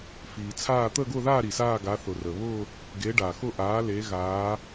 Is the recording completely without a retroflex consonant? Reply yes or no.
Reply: no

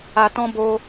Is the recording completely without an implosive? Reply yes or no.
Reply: yes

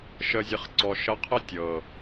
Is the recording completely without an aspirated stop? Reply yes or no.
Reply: no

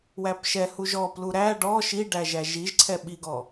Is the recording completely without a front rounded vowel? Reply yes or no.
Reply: yes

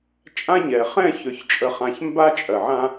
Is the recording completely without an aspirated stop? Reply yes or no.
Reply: yes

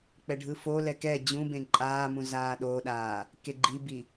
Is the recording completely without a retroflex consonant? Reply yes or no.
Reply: no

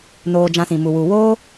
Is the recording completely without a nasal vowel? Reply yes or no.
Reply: no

